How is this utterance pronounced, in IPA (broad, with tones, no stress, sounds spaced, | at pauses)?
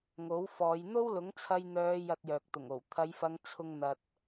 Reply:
ŋ o˨˥ w f ɔː˨˧ j n̪ o˥ w l ʊ˨˥ ŋ t͡sʰ ɐ˧ j n̪ œː˨˧ j ɐ˧ t̚ j œː˨ k̚ t̪ ʊ˨˩ ŋ o˨˩ w t̪ʰ ɐ˨˧ j f ɐ˨˧ ŋ t͡sʰ ʊ˨ ŋ n̪ ɐ˨ t̚